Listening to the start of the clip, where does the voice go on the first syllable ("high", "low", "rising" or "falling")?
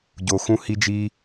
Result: low